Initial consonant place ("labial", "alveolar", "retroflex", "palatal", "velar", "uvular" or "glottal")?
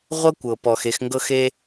uvular